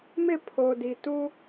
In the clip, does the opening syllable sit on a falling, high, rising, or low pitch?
falling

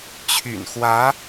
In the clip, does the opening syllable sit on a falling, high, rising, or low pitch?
low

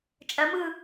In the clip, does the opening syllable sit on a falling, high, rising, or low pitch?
rising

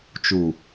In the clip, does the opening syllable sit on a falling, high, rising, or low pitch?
low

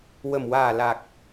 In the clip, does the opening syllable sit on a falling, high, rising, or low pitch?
low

